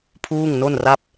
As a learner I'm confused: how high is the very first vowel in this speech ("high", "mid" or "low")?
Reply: high